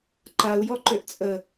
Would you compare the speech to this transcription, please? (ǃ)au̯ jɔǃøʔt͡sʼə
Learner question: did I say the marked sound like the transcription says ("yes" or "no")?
yes